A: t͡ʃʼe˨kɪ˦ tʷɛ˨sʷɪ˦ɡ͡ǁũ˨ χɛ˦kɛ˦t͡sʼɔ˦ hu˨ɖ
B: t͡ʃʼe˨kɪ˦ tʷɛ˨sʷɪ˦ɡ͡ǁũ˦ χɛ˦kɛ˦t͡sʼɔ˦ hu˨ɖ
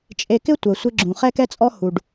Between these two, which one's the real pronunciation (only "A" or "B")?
A